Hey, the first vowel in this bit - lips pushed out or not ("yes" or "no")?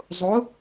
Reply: yes